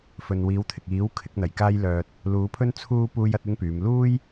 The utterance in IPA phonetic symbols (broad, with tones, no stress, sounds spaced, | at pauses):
f ɵ˨ n w iː˨˧ w t̪ʰ ɪ˨ k̚ iː˨˥ w kʰ ɪ˨˥ k̚ n̪ ɐ˨˩ j k aː˥ j l œː˧ t̚ | l uː˨˥ pʰ ɵ˥ n t͡sʰ uː˥ p uː˥ j ɐ˥ t̚ ɪ˥ ŋ p yː˨˧ m l uː˥ j